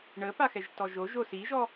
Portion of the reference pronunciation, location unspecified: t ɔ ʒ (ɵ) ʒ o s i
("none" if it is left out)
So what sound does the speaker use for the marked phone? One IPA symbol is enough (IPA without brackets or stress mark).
o